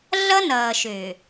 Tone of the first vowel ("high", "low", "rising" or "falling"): high